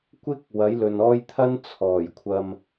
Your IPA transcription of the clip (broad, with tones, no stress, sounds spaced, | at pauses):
kʷ ɪ˥ k̚ w ɐ˨˥ j l ɵ˨ n ɔː˥ j t̪ʰ ɐ˥ n t͡sʰ ɔː˨˩ j kʷʰ ɐ˧ m